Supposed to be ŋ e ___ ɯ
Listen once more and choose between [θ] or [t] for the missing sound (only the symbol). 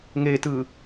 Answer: t